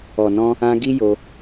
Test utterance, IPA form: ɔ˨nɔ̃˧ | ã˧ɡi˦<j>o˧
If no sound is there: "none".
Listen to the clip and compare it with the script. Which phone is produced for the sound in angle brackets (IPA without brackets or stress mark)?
j